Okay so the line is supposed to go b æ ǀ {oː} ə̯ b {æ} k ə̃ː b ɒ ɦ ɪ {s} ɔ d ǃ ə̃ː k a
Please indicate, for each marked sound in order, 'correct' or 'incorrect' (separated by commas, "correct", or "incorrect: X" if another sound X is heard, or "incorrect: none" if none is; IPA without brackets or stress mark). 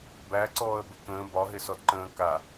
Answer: incorrect: ɔː, incorrect: ə, correct